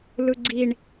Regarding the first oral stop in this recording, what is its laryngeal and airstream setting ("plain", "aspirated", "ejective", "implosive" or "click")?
click